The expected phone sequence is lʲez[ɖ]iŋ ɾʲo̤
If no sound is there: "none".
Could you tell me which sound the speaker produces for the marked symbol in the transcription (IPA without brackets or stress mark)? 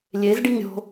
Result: ɖ